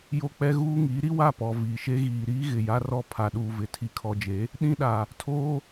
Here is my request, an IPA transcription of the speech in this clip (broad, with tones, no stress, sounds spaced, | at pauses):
j o˦ k͡p ɛ˦ ɣ uː˦ ŋ iː˨˦ ɾ i˦ w a˦˨ p ɔ˨ v iː˨ ʃ e˦ ɣ iː˨ ɾ iː˦ ɣ ɪ˨ j a˦ r ɔ˦ pʰ a˨ ɗ uː˨ v ɪ˨ tʰ i˨ kʰ ɔ˨ d͡ʒ e˨˦ | ɗ ĩ˦ ɗ a˨ | tʰ oː˦